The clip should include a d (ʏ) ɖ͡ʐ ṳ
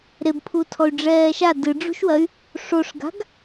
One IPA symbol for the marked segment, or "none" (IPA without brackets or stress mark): ɨ